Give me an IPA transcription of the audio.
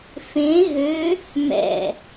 f ẽ ɣ ø | m ɛ̰

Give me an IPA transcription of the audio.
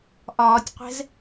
ʔ ɒː tʲ qʷ ɛ̤ z

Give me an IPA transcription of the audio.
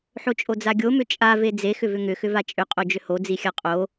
ħ o t͡ʃʼ o d͡z a ɡʲ o m ʏ t͡ʃʼ a v e d͡z e x ʏ v ʏ ŋ ʏ x ʏ v a t͡ʃʼ ʏ qʼ o d͡ʒ ʏ h o d͡z i xʲ a qʼ o

